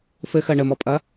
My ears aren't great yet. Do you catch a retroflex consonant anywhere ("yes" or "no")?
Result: yes